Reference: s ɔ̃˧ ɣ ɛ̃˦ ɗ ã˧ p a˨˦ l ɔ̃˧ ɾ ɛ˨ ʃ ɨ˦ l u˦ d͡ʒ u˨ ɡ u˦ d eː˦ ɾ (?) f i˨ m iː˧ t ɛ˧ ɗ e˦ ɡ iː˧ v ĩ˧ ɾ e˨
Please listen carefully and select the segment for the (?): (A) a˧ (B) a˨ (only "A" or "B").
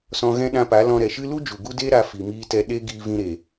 A